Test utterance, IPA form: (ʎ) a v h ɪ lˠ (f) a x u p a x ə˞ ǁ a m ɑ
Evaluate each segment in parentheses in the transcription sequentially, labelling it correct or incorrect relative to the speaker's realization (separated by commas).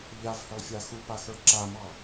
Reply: correct, incorrect